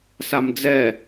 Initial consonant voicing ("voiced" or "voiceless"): voiceless